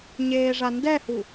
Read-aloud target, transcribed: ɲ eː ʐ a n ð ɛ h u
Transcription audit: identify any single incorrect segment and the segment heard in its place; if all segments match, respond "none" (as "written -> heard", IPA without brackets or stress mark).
ð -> d